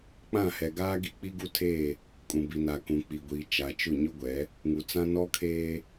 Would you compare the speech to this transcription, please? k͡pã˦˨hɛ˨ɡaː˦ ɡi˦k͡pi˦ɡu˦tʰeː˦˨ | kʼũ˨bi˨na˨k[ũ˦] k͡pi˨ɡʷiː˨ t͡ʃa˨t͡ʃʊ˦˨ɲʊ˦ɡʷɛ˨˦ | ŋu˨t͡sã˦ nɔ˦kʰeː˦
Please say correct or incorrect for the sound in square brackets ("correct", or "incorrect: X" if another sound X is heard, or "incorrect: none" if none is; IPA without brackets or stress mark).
incorrect: ũ˨